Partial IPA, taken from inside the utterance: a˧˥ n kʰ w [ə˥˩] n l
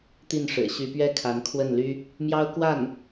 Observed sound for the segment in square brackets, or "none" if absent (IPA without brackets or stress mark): ə˥˩